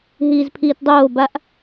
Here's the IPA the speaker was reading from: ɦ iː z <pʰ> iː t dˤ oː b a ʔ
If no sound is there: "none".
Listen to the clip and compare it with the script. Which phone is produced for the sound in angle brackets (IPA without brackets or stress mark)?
pʰ